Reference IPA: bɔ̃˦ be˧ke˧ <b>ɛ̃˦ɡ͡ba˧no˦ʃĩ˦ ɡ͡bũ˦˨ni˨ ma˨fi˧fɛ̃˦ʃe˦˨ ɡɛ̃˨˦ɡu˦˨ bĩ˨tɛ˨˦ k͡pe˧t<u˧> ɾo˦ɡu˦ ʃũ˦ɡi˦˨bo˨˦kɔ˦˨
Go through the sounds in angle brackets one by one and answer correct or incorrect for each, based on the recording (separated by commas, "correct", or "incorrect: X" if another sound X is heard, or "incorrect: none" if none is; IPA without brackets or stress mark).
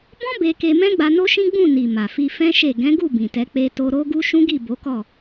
incorrect: m, incorrect: o˧